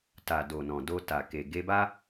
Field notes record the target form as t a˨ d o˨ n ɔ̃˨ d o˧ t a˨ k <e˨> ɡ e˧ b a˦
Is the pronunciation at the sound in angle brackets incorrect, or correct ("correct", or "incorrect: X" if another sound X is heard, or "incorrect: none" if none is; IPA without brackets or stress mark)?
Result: correct